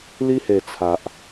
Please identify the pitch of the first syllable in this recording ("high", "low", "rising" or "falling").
high